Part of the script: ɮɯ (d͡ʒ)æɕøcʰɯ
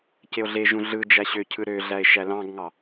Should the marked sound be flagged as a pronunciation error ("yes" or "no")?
no